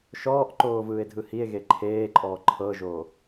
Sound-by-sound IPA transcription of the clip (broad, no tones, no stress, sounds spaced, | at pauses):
ʃ ɔː ʔ ǃ oː v ɯː e̯ dʱ ɯ h i e̯ ɣ e ǃʰ eː ǃʼ ɔː ǃʰ ɤ ʒ oː